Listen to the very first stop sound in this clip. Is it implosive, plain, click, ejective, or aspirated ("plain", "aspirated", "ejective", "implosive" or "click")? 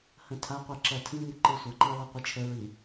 aspirated